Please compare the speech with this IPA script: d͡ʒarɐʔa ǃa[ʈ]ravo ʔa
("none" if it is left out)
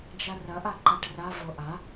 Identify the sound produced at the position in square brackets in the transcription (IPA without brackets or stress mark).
ʈ